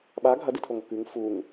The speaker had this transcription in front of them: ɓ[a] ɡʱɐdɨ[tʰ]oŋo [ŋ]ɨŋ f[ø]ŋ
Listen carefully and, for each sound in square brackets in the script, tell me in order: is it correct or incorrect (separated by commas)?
correct, correct, incorrect, incorrect